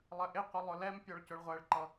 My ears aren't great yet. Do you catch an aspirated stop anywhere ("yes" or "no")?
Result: no